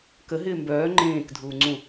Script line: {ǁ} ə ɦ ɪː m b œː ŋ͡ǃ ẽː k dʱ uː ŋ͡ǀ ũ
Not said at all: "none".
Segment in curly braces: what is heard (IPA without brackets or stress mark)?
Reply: k